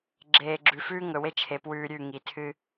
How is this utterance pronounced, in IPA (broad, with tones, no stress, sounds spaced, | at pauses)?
ɡ͡ǁ eː˨ ɡ͡ǁ ʉ˨ f ʉː˦ ŋ ɵ˨ w e˦ t͡ʃʰ e˨ p w ʉː˦ ɾʲ ʉ˦˨ ŋ i˨ tʰ ɨ˦